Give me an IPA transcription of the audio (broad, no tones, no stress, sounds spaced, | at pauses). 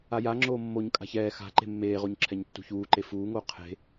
a j a ŋ͡ǁ oː mː o ɲ kʼ a̤ ç ɛː x a̤ ǃ e̤ mː eː ʁ o ɲ ǁʰ ɛ ɲ tː ṳ ç uː ǃ e f uː ŋ oː qʰ e̤